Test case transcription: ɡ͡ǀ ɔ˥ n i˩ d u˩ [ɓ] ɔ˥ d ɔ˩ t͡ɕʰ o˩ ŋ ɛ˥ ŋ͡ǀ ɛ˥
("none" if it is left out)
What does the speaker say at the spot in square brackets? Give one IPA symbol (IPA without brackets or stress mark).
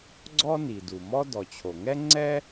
m